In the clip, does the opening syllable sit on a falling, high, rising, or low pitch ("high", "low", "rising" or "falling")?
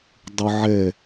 high